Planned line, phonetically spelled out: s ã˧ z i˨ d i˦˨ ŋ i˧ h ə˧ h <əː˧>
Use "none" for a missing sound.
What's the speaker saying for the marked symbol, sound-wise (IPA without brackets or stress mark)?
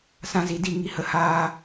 aː˧